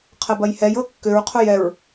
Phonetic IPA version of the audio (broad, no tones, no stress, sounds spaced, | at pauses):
qʰ ɐ b ɐ j h ɛ j ɤ kː ʏ ɹ qʰ o j ɛ ɹ